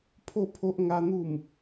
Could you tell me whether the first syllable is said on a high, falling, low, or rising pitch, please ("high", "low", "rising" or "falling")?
falling